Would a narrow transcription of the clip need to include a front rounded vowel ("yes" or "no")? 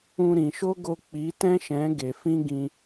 no